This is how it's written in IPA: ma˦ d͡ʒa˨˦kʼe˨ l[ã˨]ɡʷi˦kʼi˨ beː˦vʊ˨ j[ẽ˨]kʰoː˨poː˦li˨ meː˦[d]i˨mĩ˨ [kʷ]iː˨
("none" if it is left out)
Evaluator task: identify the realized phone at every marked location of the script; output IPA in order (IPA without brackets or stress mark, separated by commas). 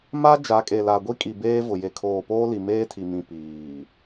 a˨, e˨, tʰ, p